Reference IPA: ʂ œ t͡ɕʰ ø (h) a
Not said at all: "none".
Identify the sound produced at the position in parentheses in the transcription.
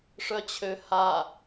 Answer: h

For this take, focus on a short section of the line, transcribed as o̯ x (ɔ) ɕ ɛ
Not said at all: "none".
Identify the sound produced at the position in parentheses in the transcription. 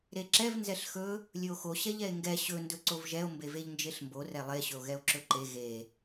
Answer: o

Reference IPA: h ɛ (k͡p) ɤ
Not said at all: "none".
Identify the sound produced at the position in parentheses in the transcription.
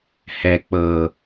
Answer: k͡p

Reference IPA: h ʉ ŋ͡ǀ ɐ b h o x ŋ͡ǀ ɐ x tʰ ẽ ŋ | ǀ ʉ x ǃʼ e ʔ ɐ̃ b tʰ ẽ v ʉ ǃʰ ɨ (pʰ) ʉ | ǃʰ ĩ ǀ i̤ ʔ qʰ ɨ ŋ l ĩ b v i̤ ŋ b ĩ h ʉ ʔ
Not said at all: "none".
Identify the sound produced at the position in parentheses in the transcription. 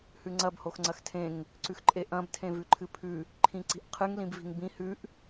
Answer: pʰ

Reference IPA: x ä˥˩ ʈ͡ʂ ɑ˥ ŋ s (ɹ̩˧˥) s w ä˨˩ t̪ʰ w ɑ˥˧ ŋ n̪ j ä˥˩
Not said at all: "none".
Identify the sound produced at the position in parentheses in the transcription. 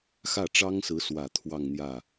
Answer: ɹ̩˧˥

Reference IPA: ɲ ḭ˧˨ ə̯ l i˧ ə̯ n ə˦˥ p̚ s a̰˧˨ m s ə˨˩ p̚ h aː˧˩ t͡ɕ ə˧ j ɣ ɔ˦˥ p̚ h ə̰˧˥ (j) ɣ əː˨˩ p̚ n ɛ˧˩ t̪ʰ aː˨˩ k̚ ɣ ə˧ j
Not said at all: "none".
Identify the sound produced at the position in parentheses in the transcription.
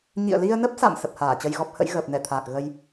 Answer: j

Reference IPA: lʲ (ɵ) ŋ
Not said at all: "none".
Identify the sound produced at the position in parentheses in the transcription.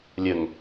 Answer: ə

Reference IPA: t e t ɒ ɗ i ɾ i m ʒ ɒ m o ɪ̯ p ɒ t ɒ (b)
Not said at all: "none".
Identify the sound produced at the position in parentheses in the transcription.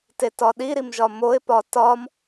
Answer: m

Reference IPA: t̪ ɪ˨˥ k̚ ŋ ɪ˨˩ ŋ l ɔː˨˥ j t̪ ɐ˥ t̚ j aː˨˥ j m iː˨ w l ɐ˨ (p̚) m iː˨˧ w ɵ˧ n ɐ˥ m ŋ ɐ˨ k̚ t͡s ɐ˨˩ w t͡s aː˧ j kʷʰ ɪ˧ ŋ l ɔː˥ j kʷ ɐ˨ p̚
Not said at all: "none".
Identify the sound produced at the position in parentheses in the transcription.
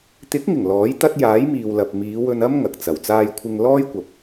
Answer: p̚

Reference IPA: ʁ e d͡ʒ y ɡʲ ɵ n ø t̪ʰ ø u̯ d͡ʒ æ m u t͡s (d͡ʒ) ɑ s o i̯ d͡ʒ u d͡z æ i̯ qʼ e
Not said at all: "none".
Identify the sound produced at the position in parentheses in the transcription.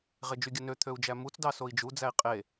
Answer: d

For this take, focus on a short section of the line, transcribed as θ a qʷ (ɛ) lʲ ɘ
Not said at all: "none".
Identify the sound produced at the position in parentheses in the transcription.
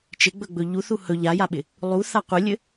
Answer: ɘ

